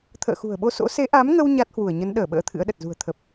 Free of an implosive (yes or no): no